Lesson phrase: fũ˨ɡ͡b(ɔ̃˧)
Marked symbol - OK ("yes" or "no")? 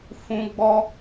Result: no